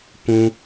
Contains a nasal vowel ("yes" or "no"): yes